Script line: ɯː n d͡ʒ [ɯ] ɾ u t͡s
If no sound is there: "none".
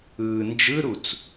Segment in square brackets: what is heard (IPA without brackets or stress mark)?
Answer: ɯ